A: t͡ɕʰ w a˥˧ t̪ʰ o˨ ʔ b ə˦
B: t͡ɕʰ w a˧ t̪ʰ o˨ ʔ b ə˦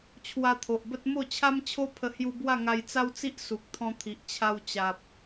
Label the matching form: B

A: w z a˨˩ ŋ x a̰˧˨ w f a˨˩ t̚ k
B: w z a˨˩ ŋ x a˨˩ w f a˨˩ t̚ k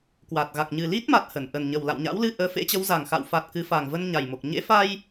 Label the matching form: A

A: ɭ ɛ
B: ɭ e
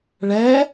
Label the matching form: A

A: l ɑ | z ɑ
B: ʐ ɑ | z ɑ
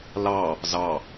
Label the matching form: A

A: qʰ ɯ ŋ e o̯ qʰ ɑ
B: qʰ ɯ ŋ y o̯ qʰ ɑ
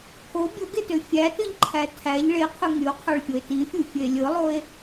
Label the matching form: B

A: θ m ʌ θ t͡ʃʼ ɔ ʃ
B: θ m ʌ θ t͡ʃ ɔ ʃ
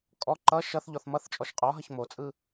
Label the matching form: A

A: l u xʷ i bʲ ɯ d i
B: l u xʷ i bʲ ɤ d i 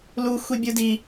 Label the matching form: A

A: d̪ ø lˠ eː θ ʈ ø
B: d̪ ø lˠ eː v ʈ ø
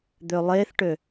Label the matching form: A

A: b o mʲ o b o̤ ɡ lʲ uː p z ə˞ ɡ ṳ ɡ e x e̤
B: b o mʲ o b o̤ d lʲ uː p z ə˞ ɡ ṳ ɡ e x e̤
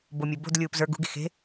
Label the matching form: B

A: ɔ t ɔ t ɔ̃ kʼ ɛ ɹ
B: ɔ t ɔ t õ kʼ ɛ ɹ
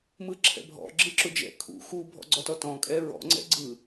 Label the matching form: A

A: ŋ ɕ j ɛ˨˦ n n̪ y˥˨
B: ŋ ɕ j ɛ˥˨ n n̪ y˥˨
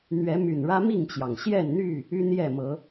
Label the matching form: B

